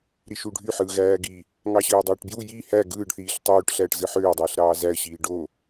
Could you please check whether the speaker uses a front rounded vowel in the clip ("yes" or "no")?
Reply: yes